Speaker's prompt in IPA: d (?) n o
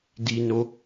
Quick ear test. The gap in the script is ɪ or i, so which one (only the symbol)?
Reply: i